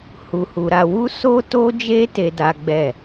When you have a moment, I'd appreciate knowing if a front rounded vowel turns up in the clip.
no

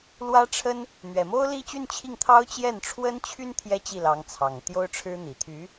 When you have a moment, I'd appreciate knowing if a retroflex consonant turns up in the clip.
yes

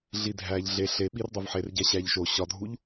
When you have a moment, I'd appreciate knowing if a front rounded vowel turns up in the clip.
no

